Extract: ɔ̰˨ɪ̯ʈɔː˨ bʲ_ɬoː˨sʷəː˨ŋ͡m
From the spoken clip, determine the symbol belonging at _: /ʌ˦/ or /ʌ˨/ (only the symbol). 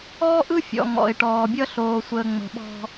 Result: ʌ˦